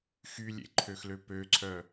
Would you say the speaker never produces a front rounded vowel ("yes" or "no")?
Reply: no